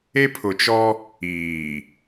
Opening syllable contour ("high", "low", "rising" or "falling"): high